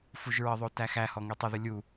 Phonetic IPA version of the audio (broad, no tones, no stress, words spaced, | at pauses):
fuʒɹəðˤo tæxæhɔ ŋetˤəðə lʲu